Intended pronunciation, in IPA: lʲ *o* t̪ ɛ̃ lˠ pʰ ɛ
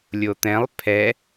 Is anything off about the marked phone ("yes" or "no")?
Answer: no